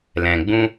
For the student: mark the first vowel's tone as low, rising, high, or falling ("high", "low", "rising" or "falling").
low